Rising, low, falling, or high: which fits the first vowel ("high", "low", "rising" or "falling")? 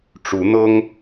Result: rising